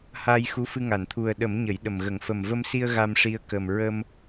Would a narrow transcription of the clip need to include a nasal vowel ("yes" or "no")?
no